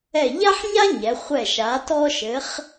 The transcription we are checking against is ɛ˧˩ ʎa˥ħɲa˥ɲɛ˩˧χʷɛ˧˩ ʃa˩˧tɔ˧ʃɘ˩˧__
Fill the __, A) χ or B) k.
A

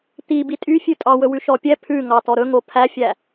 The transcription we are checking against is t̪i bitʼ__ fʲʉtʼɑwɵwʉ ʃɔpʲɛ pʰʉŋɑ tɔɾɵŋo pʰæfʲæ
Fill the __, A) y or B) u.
A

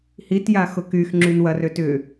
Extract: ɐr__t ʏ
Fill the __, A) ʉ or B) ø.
B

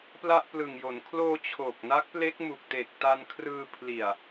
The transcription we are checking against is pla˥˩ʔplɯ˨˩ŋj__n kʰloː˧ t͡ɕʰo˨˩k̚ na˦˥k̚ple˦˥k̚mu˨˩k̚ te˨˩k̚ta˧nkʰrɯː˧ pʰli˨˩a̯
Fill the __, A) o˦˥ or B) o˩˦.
B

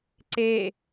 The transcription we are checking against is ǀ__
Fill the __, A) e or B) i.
A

